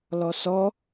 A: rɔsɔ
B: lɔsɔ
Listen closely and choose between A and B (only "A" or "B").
B